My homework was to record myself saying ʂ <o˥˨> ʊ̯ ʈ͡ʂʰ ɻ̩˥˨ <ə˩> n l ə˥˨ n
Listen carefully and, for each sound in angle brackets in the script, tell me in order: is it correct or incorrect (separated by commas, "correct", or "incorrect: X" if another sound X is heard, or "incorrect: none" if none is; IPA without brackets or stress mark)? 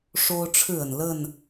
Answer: incorrect: o˦, correct